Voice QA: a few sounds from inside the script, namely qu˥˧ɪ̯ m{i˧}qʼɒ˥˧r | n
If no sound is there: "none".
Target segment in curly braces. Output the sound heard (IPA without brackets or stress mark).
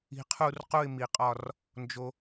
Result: i˧